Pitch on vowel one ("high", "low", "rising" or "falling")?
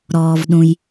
low